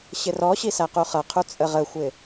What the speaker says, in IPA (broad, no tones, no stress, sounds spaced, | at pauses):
ɕ ɪ r ɔ ɕ i s æ q u χ ʌ qʰ u t͡sʼ ə ʁ ə xʷ ɪ